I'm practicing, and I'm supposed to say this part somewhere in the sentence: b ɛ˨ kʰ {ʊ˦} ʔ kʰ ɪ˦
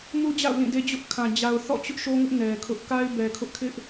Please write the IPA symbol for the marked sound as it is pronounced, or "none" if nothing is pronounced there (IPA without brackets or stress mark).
ʊ˦